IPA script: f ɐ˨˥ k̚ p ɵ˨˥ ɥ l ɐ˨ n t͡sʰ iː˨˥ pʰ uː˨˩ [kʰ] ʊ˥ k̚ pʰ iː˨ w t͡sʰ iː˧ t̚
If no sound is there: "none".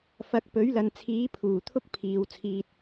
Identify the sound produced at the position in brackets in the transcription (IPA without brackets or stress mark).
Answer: t̪ʰ